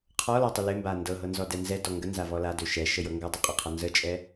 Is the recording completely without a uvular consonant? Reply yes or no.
no